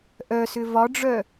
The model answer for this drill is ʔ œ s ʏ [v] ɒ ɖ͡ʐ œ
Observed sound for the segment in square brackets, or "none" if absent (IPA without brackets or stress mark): v